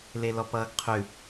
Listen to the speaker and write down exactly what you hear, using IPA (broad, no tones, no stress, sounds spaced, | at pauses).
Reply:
l e l ɔ p ʌː ɡ qʰ ʉ